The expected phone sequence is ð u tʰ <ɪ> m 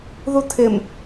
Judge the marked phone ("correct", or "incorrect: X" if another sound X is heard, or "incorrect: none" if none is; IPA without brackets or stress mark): correct